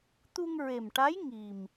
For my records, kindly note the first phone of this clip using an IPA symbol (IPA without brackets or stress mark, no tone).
t̪